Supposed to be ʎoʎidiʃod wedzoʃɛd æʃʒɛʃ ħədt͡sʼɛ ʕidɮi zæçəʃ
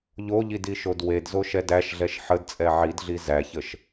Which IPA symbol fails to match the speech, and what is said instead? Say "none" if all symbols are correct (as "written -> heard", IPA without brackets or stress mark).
ʒ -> ɮ